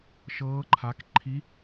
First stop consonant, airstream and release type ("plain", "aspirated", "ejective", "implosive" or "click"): click